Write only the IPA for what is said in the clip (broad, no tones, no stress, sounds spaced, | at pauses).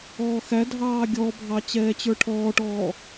ɔː x æ dʱ ɑː ɡʲ ɔ bʱ ɑ t͡ɕ ɛː t͡ɕ ə˞ ʈʰ ɔː ʈ ɔː